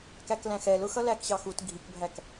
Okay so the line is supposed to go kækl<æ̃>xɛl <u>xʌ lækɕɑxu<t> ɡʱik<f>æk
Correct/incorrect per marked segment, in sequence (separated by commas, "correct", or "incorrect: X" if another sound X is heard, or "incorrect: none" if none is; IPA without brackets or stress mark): correct, incorrect: ʊ, correct, incorrect: bʱ